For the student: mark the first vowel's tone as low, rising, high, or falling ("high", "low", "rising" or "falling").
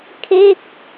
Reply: falling